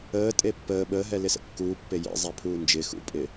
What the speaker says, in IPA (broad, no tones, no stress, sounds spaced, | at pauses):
əː tʼ e pː əː ɓ əː ɦ ɛ l ɪ s ə̰ kː uː pː e j ḛ zˤ ɛ pʰ uː n d͡ʒ ɪ x ṵ pʼ ɪ